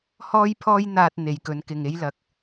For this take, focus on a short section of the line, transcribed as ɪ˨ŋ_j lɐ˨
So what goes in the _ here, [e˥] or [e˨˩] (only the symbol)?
e˥